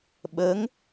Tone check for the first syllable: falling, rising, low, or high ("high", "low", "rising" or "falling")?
rising